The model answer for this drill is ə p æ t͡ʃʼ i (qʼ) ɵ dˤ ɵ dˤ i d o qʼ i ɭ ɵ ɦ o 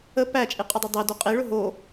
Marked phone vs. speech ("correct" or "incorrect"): correct